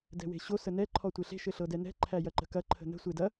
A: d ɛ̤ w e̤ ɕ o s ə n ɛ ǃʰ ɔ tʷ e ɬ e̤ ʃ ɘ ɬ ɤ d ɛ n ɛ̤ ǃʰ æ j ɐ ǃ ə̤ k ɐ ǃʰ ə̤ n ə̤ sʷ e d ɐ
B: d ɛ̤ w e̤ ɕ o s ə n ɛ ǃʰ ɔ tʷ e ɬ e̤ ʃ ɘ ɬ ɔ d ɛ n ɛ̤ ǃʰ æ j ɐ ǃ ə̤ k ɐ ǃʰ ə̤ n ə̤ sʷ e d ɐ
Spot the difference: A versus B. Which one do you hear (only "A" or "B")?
A